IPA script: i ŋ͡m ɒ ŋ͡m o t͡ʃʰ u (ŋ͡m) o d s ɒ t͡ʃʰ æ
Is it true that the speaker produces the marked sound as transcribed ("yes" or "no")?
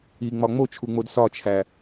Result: yes